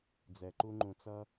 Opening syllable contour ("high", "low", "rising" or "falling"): low